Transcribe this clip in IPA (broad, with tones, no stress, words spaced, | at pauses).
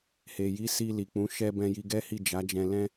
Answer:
he˨ji˨˦si˧ li˨k͡pũ˨˦ ʃɛ˧ bɛ̃˧ji˧ɡɛ˦hi˦˨ d͡ʒa˨˦d͡ʒɛ̃˧ lɛ̃˦